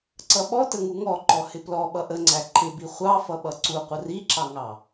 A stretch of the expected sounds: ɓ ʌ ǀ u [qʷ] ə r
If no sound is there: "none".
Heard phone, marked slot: qʷ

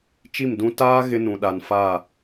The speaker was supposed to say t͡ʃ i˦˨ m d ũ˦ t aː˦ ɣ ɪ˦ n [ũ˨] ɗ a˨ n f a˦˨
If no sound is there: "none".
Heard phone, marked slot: ũ˨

